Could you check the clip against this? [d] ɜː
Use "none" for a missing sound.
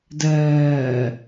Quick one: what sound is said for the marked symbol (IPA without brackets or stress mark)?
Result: d